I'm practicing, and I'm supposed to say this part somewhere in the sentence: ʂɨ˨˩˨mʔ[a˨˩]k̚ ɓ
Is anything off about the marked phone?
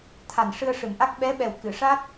yes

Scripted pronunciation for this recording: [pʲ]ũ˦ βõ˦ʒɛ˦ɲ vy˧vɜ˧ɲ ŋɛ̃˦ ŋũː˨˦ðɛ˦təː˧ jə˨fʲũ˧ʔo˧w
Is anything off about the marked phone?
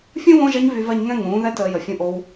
yes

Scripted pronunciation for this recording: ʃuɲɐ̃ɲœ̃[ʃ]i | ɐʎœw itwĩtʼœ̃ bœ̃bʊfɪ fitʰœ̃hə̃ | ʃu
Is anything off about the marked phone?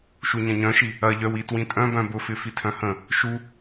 no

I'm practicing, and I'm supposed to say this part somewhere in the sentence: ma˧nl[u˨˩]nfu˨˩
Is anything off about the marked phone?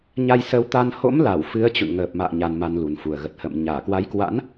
no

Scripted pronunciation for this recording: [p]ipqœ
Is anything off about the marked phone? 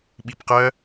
yes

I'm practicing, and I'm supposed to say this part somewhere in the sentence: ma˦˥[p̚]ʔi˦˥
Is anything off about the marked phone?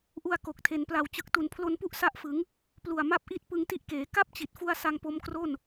no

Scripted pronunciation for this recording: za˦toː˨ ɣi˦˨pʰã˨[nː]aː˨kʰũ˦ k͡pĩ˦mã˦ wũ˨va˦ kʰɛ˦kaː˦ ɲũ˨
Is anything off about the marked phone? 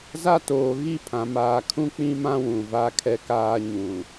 yes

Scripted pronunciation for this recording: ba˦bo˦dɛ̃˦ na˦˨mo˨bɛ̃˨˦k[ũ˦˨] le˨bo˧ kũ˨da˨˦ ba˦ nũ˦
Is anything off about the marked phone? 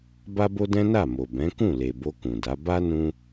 no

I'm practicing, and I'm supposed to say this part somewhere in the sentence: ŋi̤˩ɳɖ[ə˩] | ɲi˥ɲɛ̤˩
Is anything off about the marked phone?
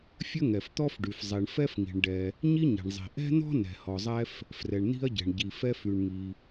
yes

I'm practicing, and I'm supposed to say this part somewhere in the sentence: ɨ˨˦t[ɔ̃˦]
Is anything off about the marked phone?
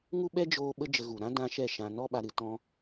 no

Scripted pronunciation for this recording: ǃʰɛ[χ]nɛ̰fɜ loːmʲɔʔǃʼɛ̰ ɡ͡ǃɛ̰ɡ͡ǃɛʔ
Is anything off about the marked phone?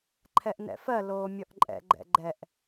yes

